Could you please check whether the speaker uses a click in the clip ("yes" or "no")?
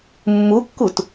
no